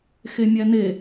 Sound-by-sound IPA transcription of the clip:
x e mʲ æ n e

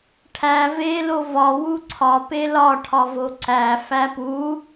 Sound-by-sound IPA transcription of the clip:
ʈʰ æ v e l o v ɒ w u ǀʰ ɒ p e l ɒ ʈʰ ɒ v o ǀ æ f æ p u

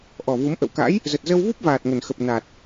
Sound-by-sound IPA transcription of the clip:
ʔ ɔ˨˩ v u˨˦ m ʔ ə̰˧˨ w k a̰˧˥ j | z ə˨˩ t̚ z ə˧ w v u˦˥ p̚ v aː˨˩ t̚ ŋ ə˨˩ n x ə˨˩ p̚ n a˨˩ t̚

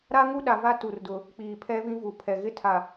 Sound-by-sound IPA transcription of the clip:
ɾ a˦ ŋ u˦ ɗ a˦ v a˦ t u˨ r d ʊ˨ | k͡p iː˨ pʰ ɛ˦ v ĩ˦ v u˨ pʰ ɛ˨ ɣ ɪ˦ tʰ a˨

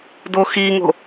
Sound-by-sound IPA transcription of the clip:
d o x i ŋ o̤

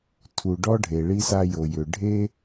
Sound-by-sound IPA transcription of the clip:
tʰ u˩ ɖ ɔ˥ ɖʱ e˩ ɭ i˥ s a˥ j o˩ j ʏ˩ ɖʱ e˥

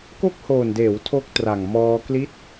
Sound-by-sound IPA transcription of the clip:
k o˦˥ k̚ h oː˨˩ n d eː˩˦ w tʰ o˦˥ k̚ t r a˨˩ ŋ m ɔː˧ k l i˦˥ t̚

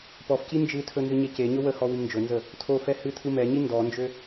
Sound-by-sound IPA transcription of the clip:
p ɔ f c i n d͡ʒ ɨ tʰ ɵ n z ɨ ɲ e c e ɲ ɵ w ə h ɔ w i m n d͡ʒ ɵ n z ə | tʰ o f ɛ h ɨ tʰ ɯ m ɛ ɲ i n d ɔ n d͡ʒ ø

